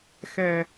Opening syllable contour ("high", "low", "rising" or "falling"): low